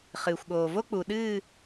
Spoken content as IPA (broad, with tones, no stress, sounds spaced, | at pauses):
χ ɨː˨ xʷ ɠ oː˨ v o˦ k͡p u˨ ɗ ɨː˦˨